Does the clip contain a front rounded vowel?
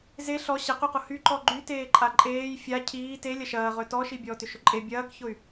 yes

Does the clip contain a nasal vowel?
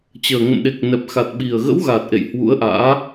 no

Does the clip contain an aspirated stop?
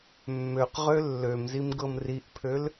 yes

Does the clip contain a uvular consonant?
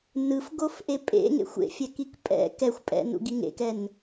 no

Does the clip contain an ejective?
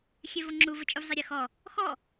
yes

